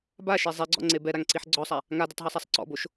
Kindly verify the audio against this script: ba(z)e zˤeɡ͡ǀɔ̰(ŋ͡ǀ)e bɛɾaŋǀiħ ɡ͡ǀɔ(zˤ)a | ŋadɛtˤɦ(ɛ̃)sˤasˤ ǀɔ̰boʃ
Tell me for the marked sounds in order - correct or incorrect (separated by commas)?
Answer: incorrect, correct, incorrect, incorrect